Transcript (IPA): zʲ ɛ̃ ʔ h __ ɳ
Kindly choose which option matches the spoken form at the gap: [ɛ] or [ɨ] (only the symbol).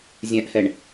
ɛ